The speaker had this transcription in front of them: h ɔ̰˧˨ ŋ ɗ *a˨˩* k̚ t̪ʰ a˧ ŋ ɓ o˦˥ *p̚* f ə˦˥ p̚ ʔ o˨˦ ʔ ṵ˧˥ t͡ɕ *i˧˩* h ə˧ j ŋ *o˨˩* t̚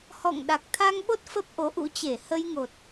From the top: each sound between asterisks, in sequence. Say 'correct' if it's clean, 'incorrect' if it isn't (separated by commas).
correct, incorrect, incorrect, correct